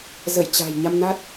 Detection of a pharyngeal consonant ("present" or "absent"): absent